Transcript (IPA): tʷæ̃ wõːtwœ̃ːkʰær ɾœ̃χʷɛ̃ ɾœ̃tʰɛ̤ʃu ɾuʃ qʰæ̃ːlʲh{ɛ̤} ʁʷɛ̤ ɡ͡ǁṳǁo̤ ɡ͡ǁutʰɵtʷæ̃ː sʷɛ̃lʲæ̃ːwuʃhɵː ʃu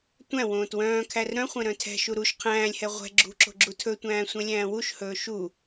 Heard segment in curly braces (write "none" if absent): ɛ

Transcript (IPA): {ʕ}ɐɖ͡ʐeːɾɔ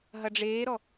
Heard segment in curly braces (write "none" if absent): ɦ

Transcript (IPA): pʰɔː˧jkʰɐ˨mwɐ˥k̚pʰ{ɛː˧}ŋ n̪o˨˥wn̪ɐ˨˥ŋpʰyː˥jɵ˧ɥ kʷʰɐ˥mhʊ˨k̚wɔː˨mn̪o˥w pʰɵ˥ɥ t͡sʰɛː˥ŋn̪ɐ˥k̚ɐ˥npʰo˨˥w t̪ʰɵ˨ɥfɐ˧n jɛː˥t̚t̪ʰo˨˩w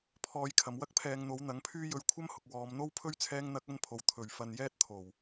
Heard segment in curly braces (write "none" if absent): ɛː˧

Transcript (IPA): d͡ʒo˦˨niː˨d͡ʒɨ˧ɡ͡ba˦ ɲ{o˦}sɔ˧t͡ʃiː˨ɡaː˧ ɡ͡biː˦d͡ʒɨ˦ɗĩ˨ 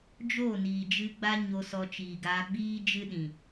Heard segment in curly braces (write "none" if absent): o˧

